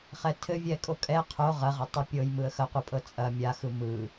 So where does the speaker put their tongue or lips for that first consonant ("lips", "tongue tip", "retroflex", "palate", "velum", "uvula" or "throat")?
uvula